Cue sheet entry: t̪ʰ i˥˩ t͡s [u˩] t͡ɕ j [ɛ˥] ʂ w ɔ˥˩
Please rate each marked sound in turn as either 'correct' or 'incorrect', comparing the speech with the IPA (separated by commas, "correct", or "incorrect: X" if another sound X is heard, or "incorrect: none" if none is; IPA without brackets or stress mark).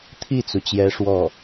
correct, incorrect: ɛ˧˥